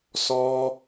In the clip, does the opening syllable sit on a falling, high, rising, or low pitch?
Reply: high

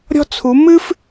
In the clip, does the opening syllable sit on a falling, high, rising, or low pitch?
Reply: high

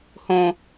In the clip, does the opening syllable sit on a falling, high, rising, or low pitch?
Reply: high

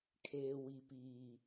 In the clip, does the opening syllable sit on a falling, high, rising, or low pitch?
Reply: low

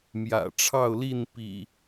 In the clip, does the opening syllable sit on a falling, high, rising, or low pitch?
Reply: low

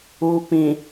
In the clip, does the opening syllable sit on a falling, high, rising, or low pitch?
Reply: low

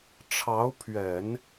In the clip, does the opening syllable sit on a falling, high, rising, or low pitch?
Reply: rising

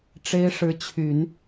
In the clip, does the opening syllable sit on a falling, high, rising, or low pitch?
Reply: high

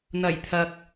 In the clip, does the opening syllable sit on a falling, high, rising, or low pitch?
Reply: low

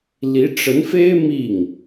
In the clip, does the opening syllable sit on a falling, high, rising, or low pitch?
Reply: rising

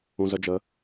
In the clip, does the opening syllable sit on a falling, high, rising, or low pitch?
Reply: low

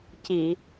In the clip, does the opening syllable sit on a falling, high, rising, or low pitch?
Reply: low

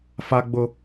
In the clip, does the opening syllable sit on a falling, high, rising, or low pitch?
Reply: high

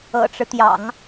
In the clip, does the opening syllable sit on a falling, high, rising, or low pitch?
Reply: low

